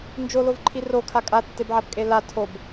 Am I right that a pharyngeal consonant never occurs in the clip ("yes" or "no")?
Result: no